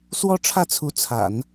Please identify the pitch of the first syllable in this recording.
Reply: high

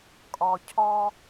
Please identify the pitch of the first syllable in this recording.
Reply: low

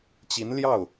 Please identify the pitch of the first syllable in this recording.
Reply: rising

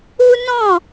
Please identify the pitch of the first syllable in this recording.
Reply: high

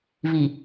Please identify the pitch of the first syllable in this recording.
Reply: low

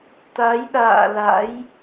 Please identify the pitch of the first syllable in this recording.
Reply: rising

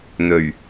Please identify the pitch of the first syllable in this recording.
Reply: low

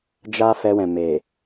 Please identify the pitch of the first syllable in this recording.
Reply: high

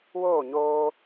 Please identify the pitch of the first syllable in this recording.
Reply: falling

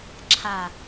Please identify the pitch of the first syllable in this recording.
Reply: low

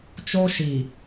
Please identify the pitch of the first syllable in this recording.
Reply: high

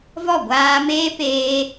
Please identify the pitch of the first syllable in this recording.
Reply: falling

